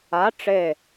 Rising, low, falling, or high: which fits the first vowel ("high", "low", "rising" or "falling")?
rising